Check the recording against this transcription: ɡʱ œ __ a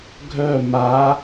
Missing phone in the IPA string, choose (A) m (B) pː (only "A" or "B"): A